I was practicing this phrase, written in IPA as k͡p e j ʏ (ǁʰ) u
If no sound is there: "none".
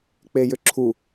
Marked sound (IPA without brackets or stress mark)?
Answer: ǁʰ